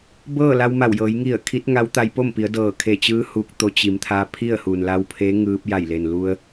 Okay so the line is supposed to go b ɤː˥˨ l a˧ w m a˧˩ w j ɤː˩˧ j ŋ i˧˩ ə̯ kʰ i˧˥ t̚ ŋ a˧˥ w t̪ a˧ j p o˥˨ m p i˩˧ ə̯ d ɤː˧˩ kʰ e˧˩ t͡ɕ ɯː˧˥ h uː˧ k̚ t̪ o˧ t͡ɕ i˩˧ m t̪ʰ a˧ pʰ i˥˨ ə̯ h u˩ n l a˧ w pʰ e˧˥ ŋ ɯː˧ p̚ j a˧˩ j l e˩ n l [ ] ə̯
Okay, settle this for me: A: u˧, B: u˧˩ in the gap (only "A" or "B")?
A